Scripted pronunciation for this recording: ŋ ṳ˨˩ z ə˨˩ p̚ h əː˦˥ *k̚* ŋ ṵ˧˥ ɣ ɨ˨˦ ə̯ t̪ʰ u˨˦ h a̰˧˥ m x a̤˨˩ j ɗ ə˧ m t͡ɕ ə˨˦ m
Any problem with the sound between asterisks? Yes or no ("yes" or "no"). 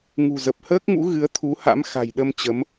no